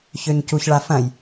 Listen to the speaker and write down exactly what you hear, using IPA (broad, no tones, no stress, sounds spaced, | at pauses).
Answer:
ç ø ɲ c u ç ɭ a f ɐ̃ j